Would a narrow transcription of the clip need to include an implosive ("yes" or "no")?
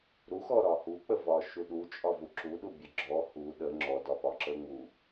yes